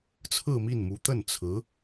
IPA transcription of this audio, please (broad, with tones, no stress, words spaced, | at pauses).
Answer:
t͡sʰɹ̩˥˧mi˥˩nmu˧˥ t̪ə˥˩nt͡sʰɹ̩˧˥